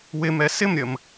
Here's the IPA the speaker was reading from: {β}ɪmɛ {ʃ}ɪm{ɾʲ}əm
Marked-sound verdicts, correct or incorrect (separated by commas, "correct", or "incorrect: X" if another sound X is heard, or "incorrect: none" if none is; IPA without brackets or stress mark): incorrect: w, incorrect: s, correct